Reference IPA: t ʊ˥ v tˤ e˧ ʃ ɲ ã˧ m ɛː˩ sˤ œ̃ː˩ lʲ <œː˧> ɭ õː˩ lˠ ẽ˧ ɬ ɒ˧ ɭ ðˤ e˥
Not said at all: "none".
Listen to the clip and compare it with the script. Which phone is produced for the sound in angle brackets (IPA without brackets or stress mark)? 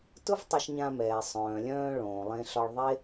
œ̃ː˧